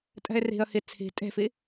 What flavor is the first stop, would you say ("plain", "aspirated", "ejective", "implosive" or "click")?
ejective